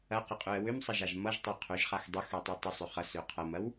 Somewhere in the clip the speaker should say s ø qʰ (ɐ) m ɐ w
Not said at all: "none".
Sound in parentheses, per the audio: ɐ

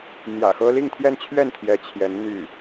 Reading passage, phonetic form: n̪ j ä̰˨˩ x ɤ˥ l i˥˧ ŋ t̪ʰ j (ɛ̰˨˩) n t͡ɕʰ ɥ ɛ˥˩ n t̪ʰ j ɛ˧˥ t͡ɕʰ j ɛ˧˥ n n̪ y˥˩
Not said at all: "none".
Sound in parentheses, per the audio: ɛ˥˧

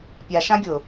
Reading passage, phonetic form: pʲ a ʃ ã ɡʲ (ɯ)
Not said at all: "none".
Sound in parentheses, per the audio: ʊ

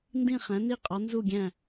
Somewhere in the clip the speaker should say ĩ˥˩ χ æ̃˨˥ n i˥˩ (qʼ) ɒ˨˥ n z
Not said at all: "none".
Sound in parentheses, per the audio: qʼ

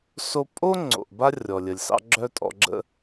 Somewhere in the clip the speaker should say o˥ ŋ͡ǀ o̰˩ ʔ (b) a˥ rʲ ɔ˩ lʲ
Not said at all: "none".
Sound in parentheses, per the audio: b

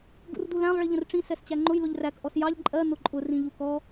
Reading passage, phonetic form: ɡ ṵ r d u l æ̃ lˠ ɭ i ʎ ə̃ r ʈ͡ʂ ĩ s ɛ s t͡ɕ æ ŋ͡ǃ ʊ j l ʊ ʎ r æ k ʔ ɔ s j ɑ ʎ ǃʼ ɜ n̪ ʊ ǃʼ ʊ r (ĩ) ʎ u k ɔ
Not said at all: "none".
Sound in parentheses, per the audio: ĩ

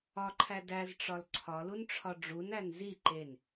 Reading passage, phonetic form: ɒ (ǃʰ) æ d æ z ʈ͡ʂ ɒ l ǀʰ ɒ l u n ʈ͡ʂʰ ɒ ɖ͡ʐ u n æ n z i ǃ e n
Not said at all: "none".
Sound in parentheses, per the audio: ǃʰ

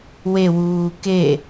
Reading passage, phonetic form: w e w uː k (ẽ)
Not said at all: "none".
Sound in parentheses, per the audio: e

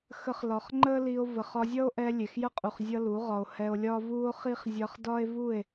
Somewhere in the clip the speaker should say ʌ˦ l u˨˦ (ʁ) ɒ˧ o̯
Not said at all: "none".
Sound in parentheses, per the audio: ʁ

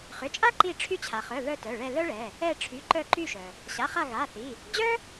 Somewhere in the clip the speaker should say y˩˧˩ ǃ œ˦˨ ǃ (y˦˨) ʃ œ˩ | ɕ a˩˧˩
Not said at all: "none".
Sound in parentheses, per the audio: y˦˨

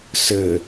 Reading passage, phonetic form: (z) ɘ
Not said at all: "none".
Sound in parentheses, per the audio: s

